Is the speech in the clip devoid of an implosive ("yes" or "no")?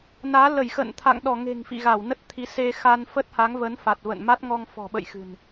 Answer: no